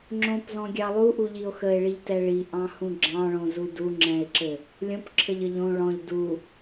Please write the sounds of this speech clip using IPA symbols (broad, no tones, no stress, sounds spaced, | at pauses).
ŋ͡ǁ õ p z ɔ̃ ɡʲ ɑ lˠ u ʔ u ʎ i o̯ x ə e̯ ɭ i ʎ t ɛ ɭ i ʔ ɑ̃ h ũ ɡ͡ǁ ɑ̃ ɭ õ z u d u ŋ͡ǁ ɛ̃ e̯ ǁ ɘ | lʲ õ p ǁʰ ə ʎ ə ʎ õ ɭ ɔ̃ ʎ d u